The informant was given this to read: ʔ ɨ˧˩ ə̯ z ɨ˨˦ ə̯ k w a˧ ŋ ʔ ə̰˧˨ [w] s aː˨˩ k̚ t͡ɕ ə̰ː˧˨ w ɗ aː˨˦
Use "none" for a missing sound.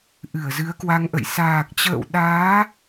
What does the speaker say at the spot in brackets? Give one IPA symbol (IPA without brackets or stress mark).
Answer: j